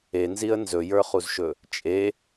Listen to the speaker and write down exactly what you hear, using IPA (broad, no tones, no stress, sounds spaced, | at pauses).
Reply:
e n z i ə̯ n z ɵ j ə˞ χ u z ʃ ɵ | t͡ʃʼ e